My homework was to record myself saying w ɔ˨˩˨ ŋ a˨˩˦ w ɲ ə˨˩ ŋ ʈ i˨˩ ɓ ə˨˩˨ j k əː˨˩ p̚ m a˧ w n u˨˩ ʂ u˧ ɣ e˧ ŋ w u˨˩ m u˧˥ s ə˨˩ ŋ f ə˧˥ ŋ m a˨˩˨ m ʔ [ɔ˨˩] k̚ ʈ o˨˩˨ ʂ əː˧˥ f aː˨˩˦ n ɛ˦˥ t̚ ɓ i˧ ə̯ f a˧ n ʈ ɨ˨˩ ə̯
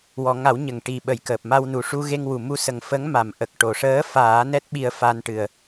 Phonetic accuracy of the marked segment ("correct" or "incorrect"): incorrect